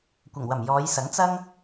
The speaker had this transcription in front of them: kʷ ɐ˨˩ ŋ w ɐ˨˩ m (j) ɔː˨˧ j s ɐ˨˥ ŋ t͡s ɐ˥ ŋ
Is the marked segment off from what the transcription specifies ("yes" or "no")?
no